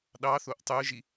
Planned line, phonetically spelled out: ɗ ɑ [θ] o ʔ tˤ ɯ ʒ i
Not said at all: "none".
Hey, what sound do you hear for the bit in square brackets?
θ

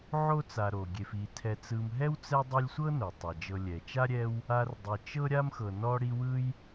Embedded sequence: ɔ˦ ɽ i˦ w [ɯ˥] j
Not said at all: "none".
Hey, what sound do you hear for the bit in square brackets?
ɯ˥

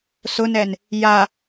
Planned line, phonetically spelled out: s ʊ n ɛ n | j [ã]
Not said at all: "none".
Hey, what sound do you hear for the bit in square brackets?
a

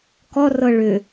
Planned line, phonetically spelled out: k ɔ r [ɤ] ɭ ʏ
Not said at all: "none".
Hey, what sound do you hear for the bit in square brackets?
ɤ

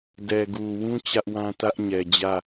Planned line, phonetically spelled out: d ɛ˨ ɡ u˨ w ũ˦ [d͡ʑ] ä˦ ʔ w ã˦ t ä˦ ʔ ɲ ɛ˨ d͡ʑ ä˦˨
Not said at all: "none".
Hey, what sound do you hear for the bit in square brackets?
t͡ɕ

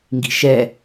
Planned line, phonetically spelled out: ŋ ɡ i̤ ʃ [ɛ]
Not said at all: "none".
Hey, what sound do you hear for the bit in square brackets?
ɛ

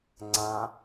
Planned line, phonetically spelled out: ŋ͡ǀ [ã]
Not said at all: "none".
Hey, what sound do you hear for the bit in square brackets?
ã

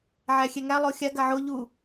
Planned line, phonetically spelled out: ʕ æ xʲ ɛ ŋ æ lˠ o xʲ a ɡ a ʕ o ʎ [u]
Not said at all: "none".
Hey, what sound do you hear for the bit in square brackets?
u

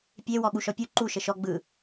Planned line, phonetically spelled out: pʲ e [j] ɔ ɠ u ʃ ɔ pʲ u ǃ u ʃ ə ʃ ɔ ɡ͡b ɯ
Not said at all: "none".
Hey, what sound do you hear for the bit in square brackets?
w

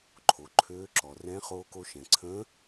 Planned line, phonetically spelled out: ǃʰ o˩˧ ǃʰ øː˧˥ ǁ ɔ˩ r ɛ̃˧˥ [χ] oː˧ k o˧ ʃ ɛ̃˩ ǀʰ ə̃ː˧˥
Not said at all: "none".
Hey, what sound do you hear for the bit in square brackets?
χ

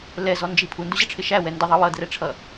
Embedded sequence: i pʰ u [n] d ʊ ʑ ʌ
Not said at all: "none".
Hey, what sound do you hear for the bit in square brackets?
n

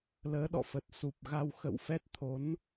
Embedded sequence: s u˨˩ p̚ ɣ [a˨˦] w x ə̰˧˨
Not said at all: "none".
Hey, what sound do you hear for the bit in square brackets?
a˧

